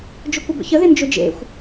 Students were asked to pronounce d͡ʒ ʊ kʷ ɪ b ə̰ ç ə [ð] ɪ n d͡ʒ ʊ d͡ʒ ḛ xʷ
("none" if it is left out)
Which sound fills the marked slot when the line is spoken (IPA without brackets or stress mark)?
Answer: ð